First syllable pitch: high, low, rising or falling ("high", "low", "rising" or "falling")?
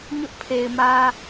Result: high